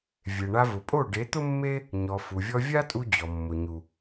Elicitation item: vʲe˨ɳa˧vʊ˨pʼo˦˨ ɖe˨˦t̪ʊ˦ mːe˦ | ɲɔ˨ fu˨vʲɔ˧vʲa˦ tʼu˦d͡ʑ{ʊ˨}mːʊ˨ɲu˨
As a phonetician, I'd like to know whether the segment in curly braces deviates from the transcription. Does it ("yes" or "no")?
yes